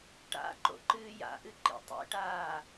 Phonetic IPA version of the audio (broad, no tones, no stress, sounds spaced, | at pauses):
ʈ a̰ ǃ o̰ ǃ ɨː j a̰ ʔ ɨ ǃ ḭ tˤ ḭ ʈ aː